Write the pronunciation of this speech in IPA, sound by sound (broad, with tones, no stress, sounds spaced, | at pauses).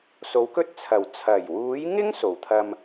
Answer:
s o˨˥ w k ɵ˥ t̚ t͡sʰ ɐ˨˩ w t͡sʰ ɐ˨˩ j w uː˨˥ j ŋ ɪ˥ ŋ s o˨˩ w t̪ʰ ɐ˧ m